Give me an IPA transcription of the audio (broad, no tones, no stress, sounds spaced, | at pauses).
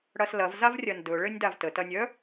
ɽ ɐ s l ɐ v z a v rʲ ɐ n d ɵ ɭ ɘ nʲ d a v t ə t ɐ nʲ œ